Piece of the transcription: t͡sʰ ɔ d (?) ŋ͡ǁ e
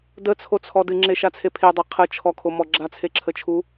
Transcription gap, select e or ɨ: ɨ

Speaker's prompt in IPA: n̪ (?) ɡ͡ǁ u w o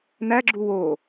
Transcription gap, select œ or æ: æ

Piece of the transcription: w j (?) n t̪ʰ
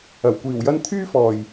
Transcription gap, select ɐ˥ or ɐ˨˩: ɐ˥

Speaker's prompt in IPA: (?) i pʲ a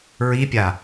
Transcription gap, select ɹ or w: ɹ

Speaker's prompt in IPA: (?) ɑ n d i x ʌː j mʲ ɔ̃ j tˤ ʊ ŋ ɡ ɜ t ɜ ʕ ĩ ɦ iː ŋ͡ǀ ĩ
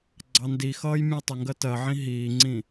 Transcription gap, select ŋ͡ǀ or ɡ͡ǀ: ɡ͡ǀ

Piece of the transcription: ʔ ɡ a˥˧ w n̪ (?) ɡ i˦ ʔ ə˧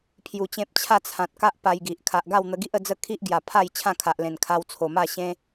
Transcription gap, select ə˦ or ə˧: ə˧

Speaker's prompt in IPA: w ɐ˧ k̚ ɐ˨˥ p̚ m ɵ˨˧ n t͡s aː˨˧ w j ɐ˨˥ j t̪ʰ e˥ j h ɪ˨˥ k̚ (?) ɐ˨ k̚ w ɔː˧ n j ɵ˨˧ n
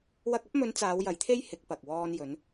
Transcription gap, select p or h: p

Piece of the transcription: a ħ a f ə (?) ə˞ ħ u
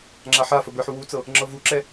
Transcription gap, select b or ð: b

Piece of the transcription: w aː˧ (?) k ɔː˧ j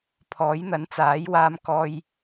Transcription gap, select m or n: m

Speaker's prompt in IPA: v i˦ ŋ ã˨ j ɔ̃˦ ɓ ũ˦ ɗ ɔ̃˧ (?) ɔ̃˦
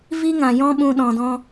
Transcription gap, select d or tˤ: d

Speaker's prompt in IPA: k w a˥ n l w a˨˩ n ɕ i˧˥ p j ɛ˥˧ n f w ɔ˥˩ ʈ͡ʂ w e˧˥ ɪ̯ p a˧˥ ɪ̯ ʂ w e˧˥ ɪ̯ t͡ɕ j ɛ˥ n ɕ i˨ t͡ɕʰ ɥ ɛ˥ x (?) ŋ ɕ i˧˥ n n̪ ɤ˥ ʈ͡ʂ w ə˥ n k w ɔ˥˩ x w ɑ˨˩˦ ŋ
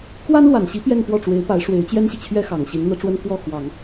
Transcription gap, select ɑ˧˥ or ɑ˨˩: ɑ˨˩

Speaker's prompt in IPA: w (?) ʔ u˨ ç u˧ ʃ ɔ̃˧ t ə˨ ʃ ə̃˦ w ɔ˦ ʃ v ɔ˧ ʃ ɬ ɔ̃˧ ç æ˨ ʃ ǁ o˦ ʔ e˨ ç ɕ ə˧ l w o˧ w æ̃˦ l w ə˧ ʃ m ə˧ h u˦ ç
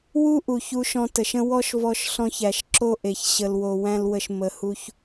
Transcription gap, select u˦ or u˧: u˦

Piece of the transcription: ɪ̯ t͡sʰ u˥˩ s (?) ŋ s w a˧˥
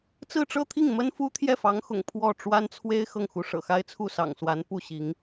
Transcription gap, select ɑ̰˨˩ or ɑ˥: ɑ̰˨˩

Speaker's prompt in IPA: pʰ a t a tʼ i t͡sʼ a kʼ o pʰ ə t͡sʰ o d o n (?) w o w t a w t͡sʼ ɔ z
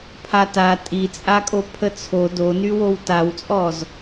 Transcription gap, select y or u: y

